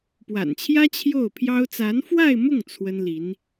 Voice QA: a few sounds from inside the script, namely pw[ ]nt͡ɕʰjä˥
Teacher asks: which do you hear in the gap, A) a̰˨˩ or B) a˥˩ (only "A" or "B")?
A